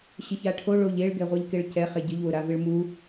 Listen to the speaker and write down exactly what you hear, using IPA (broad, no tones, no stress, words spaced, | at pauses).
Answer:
ɕɪçaʈʰo ɭoʎeɭ ɡɛʁʷɛʎkeɭcɛ χeɟɪʎ wʊɾavɪɭmu